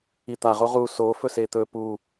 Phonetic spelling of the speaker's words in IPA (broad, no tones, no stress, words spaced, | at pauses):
it̪aʁo ʁu so fɵset̪ɵ pu